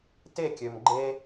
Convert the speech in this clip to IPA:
t e˦˨ kʲ ø˨ m ɡ͡ǃ e˧

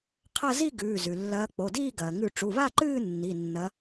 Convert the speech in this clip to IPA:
qʰ ɐ˥˧ z i˥˧ ɡ ʉː˩˧˩ z ʉ˩ lː ɐː˨˦ k͡p o˩˧˩ d iː˥˧ ɡ ɐː˩ ŋ ʉ˧˩˧ ʈ͡ʂ u˩˧˩ β a˥˧ ǃ ɨː˥˧ nː i˩˧˩ nː ɐ˨˦

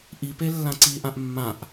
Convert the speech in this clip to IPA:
ʔ i p e lː ã ǀ i ʔ ã ʔ mː ã ʔ

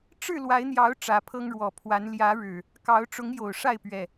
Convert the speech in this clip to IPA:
ʈ͡ʂ ɻ̩˥˨ l w a˨˦ ɪ̯ n̪ j ɑ˨˦ ʊ̯ ʈ͡ʂ ä˨˦ pʰ ɤ˦ ŋ ɻ w ɔ˨˩ pʰ w a˨˦ n l j ä˨˦ ɻ ɻ̩˨˩ | k ɑ˨˦ ʊ̯ ʈ͡ʂ ʊ˨˦ ŋ j o˨˩ ʊ̯ ʂ a˥˨ ɪ̯ p ɥ ɛ˨˩

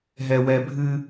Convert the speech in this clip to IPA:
ɦ ɛ w ɛ bʱ ɨ

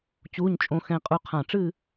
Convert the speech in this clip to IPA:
t͡ɕ uː˧˥˧ ɲ t͡ʃʼ õ˧ x ɛ̃˧ qʼ u˧ qʰ ã˧˩ ʈ͡ʂ ɨ˥˧

